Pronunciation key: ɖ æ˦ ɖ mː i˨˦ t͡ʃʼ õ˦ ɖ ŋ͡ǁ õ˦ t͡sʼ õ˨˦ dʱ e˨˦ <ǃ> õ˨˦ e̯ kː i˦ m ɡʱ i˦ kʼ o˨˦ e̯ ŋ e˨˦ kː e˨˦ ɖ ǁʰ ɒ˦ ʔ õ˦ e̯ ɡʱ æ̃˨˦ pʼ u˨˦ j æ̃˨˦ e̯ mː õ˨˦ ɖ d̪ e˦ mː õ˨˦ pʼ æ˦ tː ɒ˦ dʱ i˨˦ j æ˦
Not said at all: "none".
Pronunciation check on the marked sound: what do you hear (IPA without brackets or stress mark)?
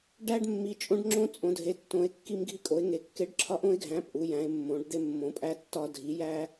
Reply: tː